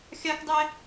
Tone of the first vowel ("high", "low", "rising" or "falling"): high